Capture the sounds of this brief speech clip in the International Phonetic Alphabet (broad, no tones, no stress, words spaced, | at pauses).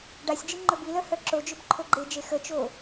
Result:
ɖasʲd͡ʒi ŋ͡ǃɵbilœ hœǁod͡ʒɵb ǃʰoɡ͡ǃed͡ʒe xət͡ʃo